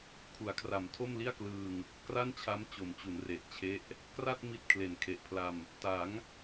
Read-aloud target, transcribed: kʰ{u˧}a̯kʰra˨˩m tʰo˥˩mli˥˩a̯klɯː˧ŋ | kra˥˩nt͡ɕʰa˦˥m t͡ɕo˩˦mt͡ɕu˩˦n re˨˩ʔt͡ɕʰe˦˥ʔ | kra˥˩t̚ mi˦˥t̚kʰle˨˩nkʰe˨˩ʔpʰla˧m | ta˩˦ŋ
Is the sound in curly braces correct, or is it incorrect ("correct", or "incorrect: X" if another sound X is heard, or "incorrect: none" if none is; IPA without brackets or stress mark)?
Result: incorrect: u˩˦